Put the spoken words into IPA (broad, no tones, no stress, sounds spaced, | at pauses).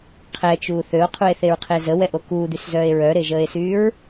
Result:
qʰ ɛ t͡ʃ uː θ ø o̯ qʰ u e̯ θ e ɹ qʰ e z ə w ɛ ʔ o k uː d̪ y s z œː e̯ ɹ œ ɾ e ʒ əː e̯ s yː ɹ